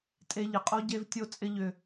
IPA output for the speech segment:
tʼ e˧ ʎ ɪ˨ qʼ o˦ ɟ e˧ v tʲ o˧ t͡sʼ ɪ˧ ʎ ʏ˨

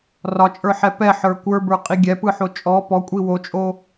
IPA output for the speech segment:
r ɒ t͡ʃʼ ə˞ ħ ɛ p ɛ ħ ə˞ kʷ ə˞ b ə˞ qʼ i ɡʲ ɛ p ɯ ħ o t͡ʃʼ ɔ p ɔ kʷʼ i w o t͡ʃʼ o

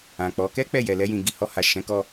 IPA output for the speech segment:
ã˨ k͡p ɔ˨˦ k ɛ˦ k͡p ɛ˦˨ j ɛ˨ l ɛ˧ j ĩ˨ ɡ i˨ h ɔ˧ h a˨ ʃ ɛ̃˨˦ k ɔ˧

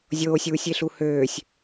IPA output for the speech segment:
zʲ oː sʲ uː sʲ e ɬ u h øː sʲ

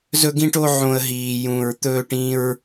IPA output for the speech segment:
z ɵ˥ ɡ ĩ˥ ʈ o˥ ʕ õ˥ ə̯ ɦ iː˥ j ũː˥ ɹ t̪ ɵː˥ ʈ ĩ˥ ɹ

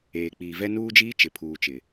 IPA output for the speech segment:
eː˨ k͡p iː˨ v ɛ˦ n uː˦ d͡ʒ iː˦ t͡ʃ ɪ˨ pʰ uː˨ t͡ʃ ɪ˨

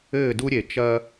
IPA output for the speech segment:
ɘː˦˨ d u˦ ɾʲ e˨ t͡ʃ ɐ˦

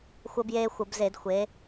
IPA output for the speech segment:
xʷ əː˦ b j eː˦ xʷ ə˧˩˧ b z e˧˩˧ d xʷ e˩˧

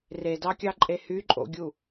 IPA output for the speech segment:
r e d ɑ kʲ ɑ ǃʼ e h y ǃʼ o̰ ɡʲ u

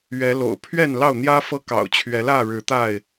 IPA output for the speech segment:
ɥ ɛ˨˦ l o̰˨˩ ʊ̯ pʰ ɥ ɛ˥˨ n l ɑ˥˨ ʊ̯ n̪ j ä˦ f ɤ˦ k ɑ̰˨˩ ʊ̯ t͡ɕʰ ɥ ɛ˨˦ l ä˥˨ ɻ ɻ̩˨˦ t̪ a˥˨ ɪ̯

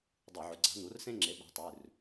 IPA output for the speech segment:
dˤ ɨ˧˩˧ ʕ ɵ˩˥ ɡ͡ǀ a̤˩˥ n̪ u˩˥ r s ẽ˦ ŋ͡ǁ e˩˥ ɓ a̤˩˥ tˤ ʉ˩˧˩ r

